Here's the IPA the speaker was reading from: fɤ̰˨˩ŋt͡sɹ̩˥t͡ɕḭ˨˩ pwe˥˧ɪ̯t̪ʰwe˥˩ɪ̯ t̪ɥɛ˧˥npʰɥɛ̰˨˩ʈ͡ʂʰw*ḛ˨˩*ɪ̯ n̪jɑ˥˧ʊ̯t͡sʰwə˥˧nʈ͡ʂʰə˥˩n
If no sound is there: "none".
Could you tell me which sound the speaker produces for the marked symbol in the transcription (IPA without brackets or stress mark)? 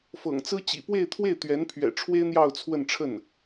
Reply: e˥